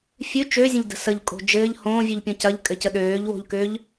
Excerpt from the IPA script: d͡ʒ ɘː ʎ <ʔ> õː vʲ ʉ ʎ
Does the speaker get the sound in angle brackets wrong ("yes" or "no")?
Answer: yes